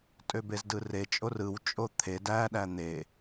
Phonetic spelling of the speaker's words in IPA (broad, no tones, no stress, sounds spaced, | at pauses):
tʼ ø b e z d ɯ r e t͡ʃʼ o r ɯ w t͡ʃʼ o t̪ʰ e d æ ɗ æ n̪ e